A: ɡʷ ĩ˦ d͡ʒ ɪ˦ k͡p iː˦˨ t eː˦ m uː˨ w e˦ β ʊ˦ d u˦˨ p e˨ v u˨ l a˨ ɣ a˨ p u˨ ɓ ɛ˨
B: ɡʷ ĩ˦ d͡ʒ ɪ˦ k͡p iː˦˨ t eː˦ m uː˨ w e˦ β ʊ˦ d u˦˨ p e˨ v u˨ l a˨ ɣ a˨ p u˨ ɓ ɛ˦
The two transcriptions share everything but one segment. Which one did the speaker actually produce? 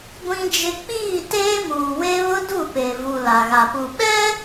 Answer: B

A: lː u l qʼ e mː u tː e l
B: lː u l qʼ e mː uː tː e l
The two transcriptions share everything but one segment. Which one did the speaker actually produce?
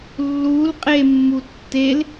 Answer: A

